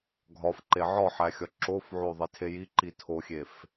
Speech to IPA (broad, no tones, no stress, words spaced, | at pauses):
ɡʱɒfǃe ʕɒħæ xʲɒǁofʕo ðˤitʰejiǃi tʰoxʲef